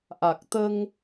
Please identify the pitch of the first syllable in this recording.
low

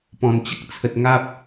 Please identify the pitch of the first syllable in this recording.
low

